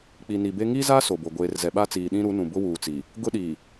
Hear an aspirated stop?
no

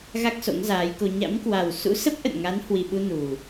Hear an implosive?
yes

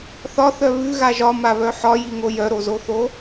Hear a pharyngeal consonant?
yes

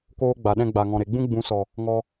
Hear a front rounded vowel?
no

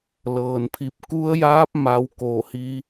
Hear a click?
no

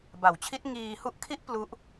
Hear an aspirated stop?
yes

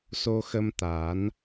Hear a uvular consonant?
no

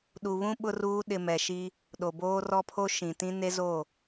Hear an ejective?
no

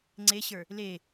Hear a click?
yes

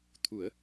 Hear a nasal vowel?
no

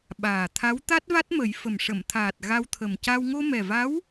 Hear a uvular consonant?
no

